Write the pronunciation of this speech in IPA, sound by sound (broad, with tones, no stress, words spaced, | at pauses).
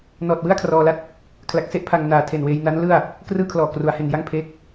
nɔː˨˩t̚wɯ˥˩a̯ kʰrɔː˧la˥˩t̚ | kʰla˨˩k̚se˥˩ʔ pʰa˧ŋ naː˨˩tʰe˨˩nweː˧jna˦˥n lɯ˥˩a̯ | krɯː˥˩kʰlɔː˨˩ kru˩˦a̯he˨˩nja˥˩ŋ pʰeː˦˥k̚